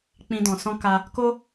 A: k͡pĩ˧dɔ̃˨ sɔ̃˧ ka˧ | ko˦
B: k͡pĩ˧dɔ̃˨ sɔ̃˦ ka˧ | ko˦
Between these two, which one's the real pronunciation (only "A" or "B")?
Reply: A